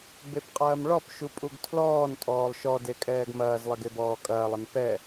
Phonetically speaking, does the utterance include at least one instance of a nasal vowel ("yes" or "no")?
no